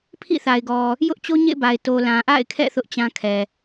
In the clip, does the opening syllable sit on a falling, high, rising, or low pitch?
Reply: falling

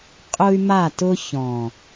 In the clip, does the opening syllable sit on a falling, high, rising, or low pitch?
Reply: high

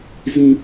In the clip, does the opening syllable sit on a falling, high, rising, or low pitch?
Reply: high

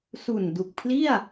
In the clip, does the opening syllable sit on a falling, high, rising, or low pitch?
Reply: low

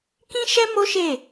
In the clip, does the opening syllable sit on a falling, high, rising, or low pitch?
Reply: high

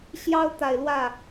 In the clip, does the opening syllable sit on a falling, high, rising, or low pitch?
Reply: high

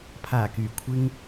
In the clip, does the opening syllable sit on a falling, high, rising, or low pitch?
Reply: low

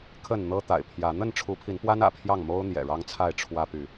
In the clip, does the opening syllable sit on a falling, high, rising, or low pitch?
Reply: falling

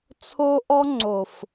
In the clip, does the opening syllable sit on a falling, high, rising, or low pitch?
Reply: high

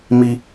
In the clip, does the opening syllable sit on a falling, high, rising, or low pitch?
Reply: high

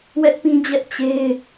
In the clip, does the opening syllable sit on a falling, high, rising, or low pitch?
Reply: high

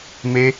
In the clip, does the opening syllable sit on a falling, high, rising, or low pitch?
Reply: high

